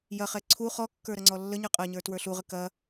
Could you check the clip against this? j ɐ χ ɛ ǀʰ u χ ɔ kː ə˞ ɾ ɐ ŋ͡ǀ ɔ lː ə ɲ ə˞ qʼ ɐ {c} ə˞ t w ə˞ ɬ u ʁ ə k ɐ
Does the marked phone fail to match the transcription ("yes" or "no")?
yes